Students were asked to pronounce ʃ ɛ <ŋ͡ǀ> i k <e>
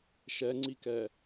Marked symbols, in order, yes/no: yes, no

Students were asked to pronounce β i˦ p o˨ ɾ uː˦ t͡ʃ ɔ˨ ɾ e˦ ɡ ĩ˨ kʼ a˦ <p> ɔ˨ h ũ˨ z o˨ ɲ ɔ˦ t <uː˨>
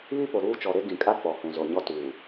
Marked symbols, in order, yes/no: no, yes

